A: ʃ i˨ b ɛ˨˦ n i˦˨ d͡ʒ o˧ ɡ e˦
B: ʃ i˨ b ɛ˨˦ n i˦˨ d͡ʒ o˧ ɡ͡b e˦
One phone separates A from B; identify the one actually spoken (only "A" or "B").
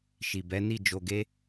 A